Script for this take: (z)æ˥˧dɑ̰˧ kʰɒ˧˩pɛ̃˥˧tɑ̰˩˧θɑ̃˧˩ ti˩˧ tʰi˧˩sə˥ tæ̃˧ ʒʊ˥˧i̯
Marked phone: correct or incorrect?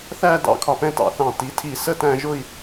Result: incorrect